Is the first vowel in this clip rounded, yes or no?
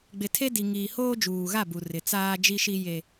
no